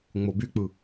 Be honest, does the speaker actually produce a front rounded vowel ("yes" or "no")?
yes